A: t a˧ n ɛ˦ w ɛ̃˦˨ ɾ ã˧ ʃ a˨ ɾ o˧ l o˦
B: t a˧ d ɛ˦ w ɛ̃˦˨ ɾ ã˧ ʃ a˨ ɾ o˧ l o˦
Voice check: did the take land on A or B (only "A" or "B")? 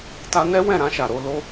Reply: A